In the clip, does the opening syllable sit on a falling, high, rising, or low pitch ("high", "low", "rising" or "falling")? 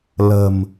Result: low